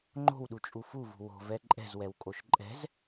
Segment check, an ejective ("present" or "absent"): present